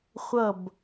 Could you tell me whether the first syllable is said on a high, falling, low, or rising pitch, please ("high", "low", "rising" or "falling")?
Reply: falling